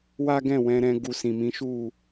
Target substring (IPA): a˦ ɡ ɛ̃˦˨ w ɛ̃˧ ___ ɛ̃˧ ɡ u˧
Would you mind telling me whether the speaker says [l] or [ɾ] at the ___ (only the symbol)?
ɾ